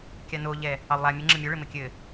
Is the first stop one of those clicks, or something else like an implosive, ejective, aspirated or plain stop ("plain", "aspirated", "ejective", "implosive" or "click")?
plain